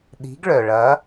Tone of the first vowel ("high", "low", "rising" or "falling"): rising